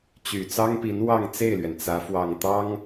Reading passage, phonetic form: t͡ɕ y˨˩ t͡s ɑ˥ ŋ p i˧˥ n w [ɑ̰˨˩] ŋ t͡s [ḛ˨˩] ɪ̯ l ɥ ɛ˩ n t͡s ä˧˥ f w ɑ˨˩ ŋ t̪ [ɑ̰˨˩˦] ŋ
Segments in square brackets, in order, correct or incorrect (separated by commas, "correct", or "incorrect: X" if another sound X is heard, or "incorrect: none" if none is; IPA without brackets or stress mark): incorrect: ɑ˥˧, incorrect: e˥˩, incorrect: ɑ˥